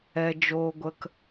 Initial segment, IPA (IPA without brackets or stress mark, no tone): ɛ